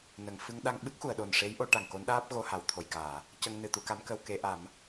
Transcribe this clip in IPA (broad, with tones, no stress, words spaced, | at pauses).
nə˨˩˨ŋfɨ˧ŋ ɗa˧ŋɓɨ˦˥k̚xu˨˩˨ə̯ɗo˨˩n ʂe˧˥jʔo˧ ʈa˨˩ŋko˧˥nɗaː˦˥p̚ ɣo˧ ha˨˩˨wt̪ʰo˨˩jkaː˨˩˨ | cə˧ŋ nɨ˨˩ t̪u˧ka˧˥mkə˧w ke˨˩˦ʔa˨˩˦m